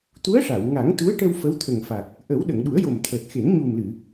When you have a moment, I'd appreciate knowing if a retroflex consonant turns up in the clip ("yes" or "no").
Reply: yes